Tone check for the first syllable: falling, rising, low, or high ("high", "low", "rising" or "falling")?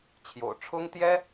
low